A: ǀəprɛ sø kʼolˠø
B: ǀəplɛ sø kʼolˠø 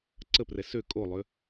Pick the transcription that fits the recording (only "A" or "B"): A